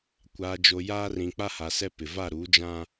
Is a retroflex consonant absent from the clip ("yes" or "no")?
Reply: yes